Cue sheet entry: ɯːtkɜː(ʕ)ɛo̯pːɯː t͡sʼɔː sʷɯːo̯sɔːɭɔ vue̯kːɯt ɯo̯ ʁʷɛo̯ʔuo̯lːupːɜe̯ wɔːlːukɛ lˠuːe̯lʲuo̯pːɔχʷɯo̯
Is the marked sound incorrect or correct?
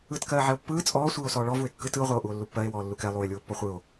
correct